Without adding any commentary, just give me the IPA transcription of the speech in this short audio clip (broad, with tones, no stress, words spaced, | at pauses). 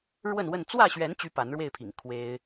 ɻwə˥˨nwə˥˨n t͡swä˥˨ɕɥɛ˨˦n t͡ɕy˦pa˨˦nɻwe˥˨ɪ̯pʰḭ˨˩ŋ kʰwe˦ɪ̯